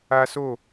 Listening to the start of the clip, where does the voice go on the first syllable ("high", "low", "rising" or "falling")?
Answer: high